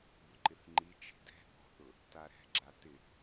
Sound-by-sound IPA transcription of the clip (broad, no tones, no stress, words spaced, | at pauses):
bʊǃɪθŋ͡ǃi t͡ʃe̤dɛ̤ ɠɔ̤θʊ | taɾɛ̤ɡ͡ǁa tɪ